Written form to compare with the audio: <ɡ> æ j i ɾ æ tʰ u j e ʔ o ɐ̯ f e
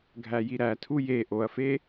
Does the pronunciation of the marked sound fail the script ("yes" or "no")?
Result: yes